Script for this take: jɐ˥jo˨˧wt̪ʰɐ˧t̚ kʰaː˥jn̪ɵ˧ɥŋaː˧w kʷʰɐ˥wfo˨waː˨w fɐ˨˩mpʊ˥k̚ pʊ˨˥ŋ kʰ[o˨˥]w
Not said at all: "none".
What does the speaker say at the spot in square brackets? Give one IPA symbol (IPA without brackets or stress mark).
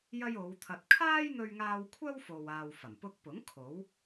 o˨˥